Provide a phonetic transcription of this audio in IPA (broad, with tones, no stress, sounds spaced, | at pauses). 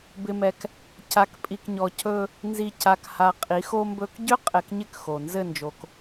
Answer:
b ɪ˨ m ɛ˨ k | c a˨ k pʼ i˨ k ɲ ɔ˨ c ɵ˦ | n z i˨ c a˨ k h a˨ qʼ i˨˦ x o˦ m b ɵ˦ k ɟ ʏ˦ qʼ ɛ˨ k ɲ ɪ˦ k x o˨ n z ɘ˦˨ n d͡ʒ o˨ k